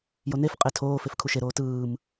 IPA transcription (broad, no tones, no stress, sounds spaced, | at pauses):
j o n e f qʼ e tʰ oː f e f kʰ u ʃ e ɾ oː t ɯː m